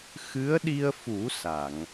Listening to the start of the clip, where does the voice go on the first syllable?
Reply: rising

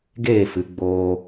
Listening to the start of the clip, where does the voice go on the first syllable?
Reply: falling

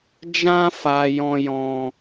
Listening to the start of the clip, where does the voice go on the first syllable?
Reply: high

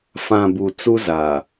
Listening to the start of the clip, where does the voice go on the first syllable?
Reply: low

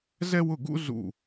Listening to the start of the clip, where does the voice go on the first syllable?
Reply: high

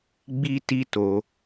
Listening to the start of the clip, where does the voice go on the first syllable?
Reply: high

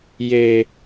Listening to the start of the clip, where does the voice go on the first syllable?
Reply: low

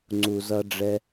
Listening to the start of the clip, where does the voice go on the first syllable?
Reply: low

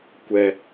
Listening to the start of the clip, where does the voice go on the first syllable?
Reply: high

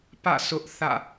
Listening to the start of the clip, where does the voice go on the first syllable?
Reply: falling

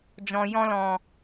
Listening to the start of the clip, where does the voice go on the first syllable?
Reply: low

